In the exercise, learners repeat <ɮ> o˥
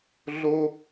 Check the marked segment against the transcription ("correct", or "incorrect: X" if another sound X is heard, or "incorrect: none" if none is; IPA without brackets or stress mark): correct